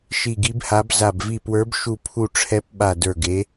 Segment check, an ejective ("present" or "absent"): absent